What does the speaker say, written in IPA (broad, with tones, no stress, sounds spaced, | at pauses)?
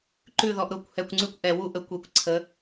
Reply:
ǃ ʉ˦˨ ð ɔ˧ ʔ ɾ ʊ˦˨ kʷ h ɛ˧ kʷ ŋ͡ǀ ʉ˦ kʷ ʔ ɛ˨ w u˦ ʔ ə˧ kʷ e˧ kʷ ǀʰ ə˨˦